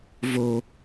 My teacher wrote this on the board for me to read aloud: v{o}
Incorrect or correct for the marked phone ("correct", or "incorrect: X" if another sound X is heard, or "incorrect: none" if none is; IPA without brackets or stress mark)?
correct